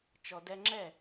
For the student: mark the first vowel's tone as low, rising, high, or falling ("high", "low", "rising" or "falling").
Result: low